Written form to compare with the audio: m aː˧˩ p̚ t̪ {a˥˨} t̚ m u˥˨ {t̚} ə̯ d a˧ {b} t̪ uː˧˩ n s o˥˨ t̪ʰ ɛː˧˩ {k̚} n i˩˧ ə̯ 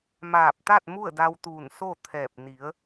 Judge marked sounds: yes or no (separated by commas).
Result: yes, no, no, no